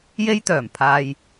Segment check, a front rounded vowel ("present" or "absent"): present